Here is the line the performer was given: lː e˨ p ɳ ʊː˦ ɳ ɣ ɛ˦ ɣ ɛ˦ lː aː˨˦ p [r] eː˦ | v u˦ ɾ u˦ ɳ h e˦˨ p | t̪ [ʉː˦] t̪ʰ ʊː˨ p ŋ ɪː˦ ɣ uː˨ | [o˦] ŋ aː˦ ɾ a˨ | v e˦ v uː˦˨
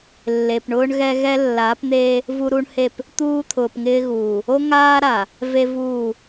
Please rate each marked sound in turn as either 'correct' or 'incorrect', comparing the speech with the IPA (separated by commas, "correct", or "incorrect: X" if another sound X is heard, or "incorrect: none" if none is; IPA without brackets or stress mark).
incorrect: n̪, incorrect: uː˦, correct